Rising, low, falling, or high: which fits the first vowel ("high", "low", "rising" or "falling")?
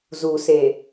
low